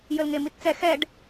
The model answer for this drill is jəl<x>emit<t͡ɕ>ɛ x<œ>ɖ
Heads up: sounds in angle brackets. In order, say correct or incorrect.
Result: incorrect, incorrect, incorrect

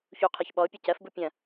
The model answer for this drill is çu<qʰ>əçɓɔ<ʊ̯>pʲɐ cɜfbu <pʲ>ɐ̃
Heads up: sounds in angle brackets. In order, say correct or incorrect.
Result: correct, correct, correct

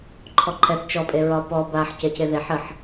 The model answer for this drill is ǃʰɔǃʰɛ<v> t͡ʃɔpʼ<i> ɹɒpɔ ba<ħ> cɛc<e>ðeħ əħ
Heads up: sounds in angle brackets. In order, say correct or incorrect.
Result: incorrect, incorrect, correct, correct

